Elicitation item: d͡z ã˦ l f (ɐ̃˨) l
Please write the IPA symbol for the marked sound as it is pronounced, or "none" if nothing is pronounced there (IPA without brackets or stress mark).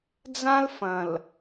ɐ̃˨